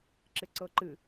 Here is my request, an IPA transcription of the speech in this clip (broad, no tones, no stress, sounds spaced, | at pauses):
ǁ ɪ ǀ ɤ ǃ ɨ